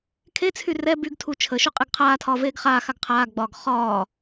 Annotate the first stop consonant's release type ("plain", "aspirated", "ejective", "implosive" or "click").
aspirated